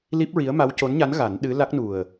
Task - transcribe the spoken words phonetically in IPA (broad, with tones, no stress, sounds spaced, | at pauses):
l i˦˥ p̚ ɹ i˧˥ ə̯ m a˧˥ w c o˧˥ n ɲ a˧˥ n ɣ a˨˩˦ n ɗ ɨ˧˥ l a˦˥ k̚ n u˨˩ ə̯